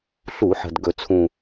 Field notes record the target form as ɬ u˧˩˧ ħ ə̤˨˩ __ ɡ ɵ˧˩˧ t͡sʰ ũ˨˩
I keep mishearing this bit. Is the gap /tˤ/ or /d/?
d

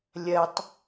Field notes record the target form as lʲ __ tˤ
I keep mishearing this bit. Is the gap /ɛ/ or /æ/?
ɛ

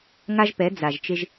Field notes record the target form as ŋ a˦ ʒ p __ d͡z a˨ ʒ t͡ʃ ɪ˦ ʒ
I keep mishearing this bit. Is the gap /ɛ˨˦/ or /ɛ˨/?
ɛ˨˦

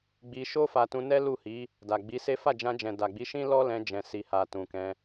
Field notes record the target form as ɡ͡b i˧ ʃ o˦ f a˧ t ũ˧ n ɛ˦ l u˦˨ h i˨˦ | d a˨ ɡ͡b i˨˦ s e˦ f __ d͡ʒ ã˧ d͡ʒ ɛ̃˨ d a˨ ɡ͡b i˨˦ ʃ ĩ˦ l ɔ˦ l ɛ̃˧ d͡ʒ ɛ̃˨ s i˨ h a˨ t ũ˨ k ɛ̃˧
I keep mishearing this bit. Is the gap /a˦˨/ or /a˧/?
a˦˨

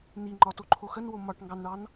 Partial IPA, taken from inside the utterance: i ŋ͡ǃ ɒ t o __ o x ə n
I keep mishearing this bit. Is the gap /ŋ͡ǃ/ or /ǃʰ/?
ǃʰ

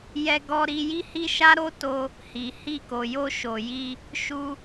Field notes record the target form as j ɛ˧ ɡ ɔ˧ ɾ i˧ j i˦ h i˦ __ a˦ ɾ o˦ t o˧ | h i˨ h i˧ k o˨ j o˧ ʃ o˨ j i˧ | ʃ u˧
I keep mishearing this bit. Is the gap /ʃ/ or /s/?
ʃ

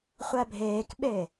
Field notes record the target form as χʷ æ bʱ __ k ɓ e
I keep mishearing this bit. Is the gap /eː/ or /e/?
eː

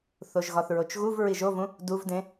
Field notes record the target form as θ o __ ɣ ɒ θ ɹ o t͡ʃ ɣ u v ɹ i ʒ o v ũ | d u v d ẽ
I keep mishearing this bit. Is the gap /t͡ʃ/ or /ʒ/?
ʒ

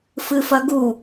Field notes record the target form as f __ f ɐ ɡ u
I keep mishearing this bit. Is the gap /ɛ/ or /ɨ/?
ɨ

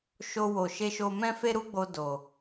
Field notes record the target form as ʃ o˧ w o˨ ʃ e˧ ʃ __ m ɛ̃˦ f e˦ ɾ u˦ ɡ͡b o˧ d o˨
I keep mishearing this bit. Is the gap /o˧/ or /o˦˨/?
o˧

